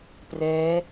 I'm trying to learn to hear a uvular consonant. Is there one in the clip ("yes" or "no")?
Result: no